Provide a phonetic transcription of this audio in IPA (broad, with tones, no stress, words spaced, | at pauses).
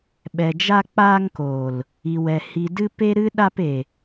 ɓɛ˨d͡ʒa˧k͡paː˧ŋkoː˨l | i˨wɛ˨ hi˨dɨ˧ pe˦ɾɨ˦ ɗa˧pe˨